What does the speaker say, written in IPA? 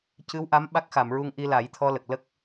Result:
cɨ˧˥wʔa˧˥m ɓa˦˥k̚xa˨˩˨mɹu˧ŋ ʔi˧la˨˩˦jt̪ʰɔ˧lə˨˩k̚ lə˦˥k̚

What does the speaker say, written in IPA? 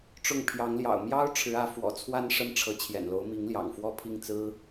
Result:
ʈ͡ʂʊ˥˩ŋ pʰjɑ˧˥ŋljɑ̰˨˩ʊ̯ mjɑ˥ʊ̯ ʈ͡ʂʰɻ̩˧˥ä˧˥fwɔ̰˨˩t͡sʰwa˥n ʂə˥nʈ͡ʂʰɤ˧˥ t͡ɕʰjɛ̰˨˩nlo˧˥ʊ̯mi˧˥ŋljɑ̰˨˩ŋ fwɔ˥˧pʰi˥˩ŋ t͡sɹ̩˥

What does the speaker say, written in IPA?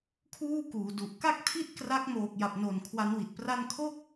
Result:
kʰuː˥˩kuː˩˦du˨˩ʔ ka˥˩k̚tʰi˥˩t̚ kra˦˥k̚ moː˨˩k̚ja˨˩p̚no˨˩n kʰwa˦˥nwi˨˩t̚pra˥˩n kʰo˥˩k̚

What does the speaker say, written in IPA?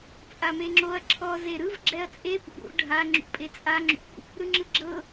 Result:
t͡sʼameŋ͡ǁoɐ̯ ǁʰɔ zeɾɯv ɡ͡ǁɛɐ̯t͡sʼe pṵɾṵ ɖʱa ŋ͡ǁṵpʼet͡sʼa ŋ͡ǁṵ | ɾɯŋ͡ǁɯɡ͡ǁɤ

